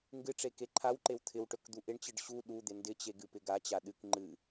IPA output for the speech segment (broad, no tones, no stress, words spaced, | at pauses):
ŋɡɨʈ͡ʂe keǃʰawǃew t̪ʰɪwʈɵk d̪uʔɪɳt͡ɕɨɖ ɕu ɗud̪ɪ ndɪt͡ɕe ɡɨpɪɡat͡ɕa ɗɨk ŋ͡ǃɨ